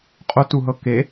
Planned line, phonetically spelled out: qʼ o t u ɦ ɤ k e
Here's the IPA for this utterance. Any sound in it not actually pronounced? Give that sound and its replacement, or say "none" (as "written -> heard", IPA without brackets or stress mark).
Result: none